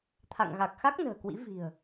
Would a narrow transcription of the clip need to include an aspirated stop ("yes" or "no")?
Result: yes